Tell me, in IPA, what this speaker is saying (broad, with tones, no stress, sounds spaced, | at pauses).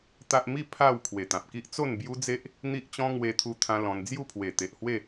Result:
t̪ a˦ ʔ m i˥˧ pʰ a˥˧ w kʰ w e˨˩ t̪ ã˨ p̚ k i˦ ʔ t͡s o˥˧ n b j u˦ d͡z e˦ ʔ | n̪ i˦ ʔ t͡ɕ ɔ̃˦ ŋ w e˧ t̪ʰ u˧ t̪ʰ ã˦ l ɔ̃˧ n d͡z j u˥˧ pʰ w e˨˩ t̪ e˨ ʔ h w e˥˧